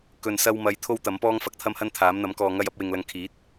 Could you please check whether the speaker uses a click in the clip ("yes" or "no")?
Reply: no